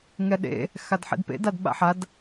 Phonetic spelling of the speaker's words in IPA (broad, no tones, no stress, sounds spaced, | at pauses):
ŋ ɛ ɗ ḛ | x a d ħ ḛ d p ḛ d a d ɓ a̰ ħ a d